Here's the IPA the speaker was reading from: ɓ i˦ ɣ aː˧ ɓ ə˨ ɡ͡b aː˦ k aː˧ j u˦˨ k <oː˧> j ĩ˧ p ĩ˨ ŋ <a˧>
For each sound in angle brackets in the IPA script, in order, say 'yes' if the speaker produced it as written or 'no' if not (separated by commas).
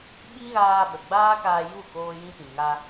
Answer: yes, yes